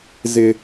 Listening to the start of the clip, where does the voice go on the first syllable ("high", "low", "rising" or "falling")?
high